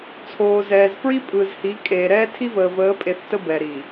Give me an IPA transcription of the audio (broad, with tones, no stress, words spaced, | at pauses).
t͡sʰoː˨zɛː˨z fɹi˦pʼɯː˨zhi˨˦ kʼeː˨ɾɛː˦ tʰi˦vəː˨ vəː˨˦pʼe˨θ tə˦bɛ˨ɾi˨